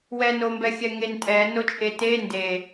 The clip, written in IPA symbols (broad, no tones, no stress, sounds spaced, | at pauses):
w ɛ n o m b ɛ xʲ ɛ ŋ e n tʼ ɛ n o t͡ʃʼ e t e n d e